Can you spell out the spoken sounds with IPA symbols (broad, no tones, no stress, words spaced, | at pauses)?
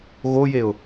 ɣojeʊ̯